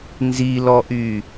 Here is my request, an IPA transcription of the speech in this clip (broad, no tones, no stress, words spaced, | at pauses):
nzilɔʔy